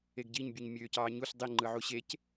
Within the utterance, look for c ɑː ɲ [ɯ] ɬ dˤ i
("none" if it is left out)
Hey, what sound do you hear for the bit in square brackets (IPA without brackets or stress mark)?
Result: u